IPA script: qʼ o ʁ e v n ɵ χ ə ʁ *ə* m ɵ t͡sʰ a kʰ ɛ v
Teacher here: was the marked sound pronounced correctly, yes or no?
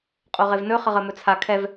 yes